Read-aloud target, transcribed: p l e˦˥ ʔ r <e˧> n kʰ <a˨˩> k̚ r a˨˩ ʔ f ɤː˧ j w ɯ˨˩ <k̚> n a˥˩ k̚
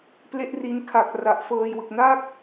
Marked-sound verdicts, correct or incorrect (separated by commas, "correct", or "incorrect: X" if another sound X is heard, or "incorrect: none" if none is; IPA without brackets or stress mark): incorrect: i˧, correct, correct